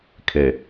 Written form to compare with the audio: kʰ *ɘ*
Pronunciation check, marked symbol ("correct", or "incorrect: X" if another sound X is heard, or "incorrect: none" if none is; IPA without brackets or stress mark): incorrect: e